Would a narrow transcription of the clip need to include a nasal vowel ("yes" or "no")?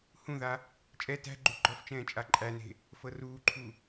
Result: yes